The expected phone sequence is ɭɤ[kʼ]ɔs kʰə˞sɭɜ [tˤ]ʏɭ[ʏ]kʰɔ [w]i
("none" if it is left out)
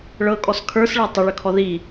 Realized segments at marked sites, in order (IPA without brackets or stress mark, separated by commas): kʼ, tˤ, ʏ, ð